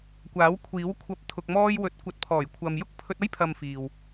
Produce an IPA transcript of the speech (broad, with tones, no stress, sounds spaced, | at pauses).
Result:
kʷ aː˨˥ w kʷʰ iː˨˥ w kʷʰ ɐ˧ p̚ t̪ʰ ʊ˧ k̚ m ɔː˥ j w ɵ˨˥ t̚ kʷ ɐ˨˥ t̚ pʰ ɔː˨˩ j kʷʰ ɐ˨ m j ʊ˥ k̚ pʰ ɵ˧ t̚ ɐ˥ j pʰ ɐ˨ m f iː˨ w